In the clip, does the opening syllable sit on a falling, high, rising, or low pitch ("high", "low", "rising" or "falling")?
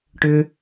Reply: low